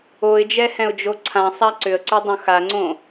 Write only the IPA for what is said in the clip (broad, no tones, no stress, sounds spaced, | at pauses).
o ɪ̯ d͡ʒ ɛ h ɛ̃ ʊ̯ d͡ʒ o ǀʰ ã sˤ a ǀ ʏ ə̯ ǀ y dˤ õ x a ŋ͡ǀ õ